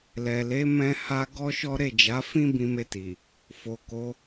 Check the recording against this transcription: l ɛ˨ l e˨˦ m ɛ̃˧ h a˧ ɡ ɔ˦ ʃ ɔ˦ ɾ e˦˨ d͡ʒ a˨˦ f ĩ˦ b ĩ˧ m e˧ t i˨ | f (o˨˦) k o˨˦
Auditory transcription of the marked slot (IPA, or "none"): o˨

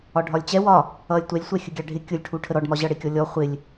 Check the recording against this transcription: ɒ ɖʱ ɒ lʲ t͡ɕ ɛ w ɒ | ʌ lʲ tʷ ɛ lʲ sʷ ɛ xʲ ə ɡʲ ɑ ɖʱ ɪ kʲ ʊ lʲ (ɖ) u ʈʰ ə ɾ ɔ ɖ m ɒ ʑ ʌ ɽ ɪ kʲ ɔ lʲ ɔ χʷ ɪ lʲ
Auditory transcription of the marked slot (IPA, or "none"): ʈʰ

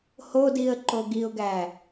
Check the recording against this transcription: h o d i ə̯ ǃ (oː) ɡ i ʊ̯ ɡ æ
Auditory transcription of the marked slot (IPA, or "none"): o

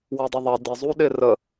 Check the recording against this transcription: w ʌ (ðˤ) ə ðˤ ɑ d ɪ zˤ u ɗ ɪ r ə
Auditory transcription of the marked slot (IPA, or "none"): dˤ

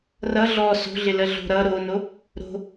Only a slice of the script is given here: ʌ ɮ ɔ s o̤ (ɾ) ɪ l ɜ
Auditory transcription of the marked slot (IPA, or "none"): ɮ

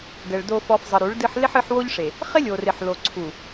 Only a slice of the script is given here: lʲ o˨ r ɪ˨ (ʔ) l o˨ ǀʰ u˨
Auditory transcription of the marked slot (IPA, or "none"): ħ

